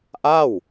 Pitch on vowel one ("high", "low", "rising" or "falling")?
falling